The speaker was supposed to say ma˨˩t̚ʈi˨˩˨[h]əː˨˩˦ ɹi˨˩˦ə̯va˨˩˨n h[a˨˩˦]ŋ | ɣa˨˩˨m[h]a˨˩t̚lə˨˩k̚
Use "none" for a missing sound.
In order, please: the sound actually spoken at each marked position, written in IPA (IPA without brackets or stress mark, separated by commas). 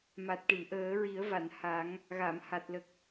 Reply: ʔ, a˨˩˦, h